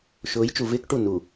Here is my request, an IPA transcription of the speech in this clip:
ʃ ʊː˨˦ j t͡ʃ u˨ v ɪː˦ k ʈ u˦˨ n u˨

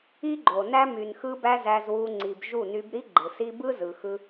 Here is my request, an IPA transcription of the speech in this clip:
i˦ ɡ͡ǃ o˨ n æ˦ m y˨ n x ɯ˧ b æ˧ z æ˧ z w u˧ ŋ͡ǀ i˨ b ʒ u˦˨ n y˧ b ɾ i˦ ɡ͡ǃ ɯ˨ s i˦ b ɯ˦ z ɯ˨ x ɯ˧

